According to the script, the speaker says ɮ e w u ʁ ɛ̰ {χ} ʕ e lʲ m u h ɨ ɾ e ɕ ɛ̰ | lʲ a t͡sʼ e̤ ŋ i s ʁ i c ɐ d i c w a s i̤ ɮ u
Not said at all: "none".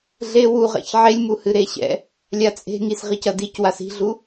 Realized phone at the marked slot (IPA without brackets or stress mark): ç